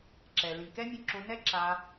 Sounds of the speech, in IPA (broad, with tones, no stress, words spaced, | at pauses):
ǁɛ˨ lĩ˨ kɛ˦mʲũ˧ǁõ˧ nɛ˦ǁa˧